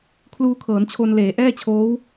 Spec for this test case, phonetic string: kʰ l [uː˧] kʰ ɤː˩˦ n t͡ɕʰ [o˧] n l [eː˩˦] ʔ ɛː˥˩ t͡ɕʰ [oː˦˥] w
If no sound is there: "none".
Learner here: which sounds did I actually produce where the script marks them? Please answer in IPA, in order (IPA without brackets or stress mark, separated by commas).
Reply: uː˧, o˧, eː˩˦, oː˦˥